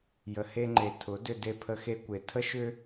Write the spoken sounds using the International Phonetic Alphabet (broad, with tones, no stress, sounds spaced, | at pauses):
j ə˧ h e˦ ŋ͡ǃ e˧ tʰ ʊ˨˦ d ʏ˧ d e˧ pʰ ə˧ x e˦ kʷ e˧ tʰ ə˦ ʃ ʏ˦